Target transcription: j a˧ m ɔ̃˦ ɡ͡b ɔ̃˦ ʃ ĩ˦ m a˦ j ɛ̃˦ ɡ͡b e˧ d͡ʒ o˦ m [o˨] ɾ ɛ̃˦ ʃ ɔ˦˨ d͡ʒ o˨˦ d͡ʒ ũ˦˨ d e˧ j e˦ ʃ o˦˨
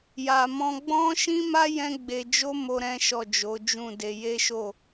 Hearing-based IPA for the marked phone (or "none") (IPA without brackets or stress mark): o˦